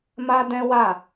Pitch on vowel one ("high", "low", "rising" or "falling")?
high